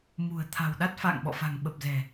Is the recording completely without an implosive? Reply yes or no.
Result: no